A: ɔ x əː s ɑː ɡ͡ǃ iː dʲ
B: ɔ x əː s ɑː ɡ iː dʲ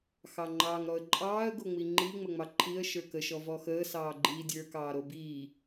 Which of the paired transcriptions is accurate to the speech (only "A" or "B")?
A